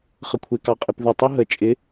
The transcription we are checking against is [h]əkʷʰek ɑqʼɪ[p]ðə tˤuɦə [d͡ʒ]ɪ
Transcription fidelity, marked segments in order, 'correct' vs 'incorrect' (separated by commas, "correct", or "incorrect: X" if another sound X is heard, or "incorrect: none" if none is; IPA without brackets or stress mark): incorrect: χ, correct, incorrect: t͡ʃʼ